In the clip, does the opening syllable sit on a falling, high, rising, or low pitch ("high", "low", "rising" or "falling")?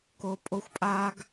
low